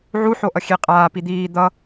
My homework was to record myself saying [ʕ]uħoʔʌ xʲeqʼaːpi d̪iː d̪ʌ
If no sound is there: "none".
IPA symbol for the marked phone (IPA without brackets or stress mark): ʕ